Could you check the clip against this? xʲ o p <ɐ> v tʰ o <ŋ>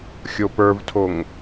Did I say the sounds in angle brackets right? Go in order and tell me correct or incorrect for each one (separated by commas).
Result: incorrect, correct